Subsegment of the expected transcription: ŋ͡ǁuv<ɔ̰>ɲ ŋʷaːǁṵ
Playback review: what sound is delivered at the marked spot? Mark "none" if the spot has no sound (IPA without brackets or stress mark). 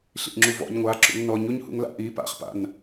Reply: ɔ̰